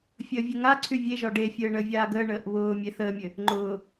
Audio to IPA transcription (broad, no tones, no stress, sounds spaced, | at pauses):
fʲ əː vʲ ɘ ŋ a ǀʰ y vʲ e ʒ ɒ ɖ e fʲ ɘː ɳ əː vʲ aː ɡ əː ɳ əː ʔ β ʊː mʲ e θ əː mʲ ɘ | ŋ͡ǃ ʊː